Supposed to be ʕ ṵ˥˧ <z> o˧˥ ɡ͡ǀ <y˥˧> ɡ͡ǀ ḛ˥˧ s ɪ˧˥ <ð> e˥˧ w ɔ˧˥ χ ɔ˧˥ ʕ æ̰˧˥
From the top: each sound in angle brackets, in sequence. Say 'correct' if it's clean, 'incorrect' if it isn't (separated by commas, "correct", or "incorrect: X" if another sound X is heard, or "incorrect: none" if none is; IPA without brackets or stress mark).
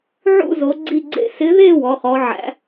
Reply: correct, incorrect: i˥˧, correct